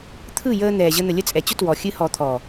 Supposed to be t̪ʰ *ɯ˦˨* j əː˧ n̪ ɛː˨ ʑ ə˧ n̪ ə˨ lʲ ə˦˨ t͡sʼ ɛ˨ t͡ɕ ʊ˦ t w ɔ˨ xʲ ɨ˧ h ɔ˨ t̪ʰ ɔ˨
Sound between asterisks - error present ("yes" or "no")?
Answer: no